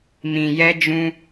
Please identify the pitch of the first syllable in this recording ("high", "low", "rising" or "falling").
low